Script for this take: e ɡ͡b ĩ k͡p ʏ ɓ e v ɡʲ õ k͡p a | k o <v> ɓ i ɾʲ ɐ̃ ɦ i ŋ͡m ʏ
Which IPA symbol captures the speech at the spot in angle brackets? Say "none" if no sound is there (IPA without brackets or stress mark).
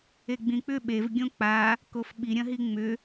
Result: f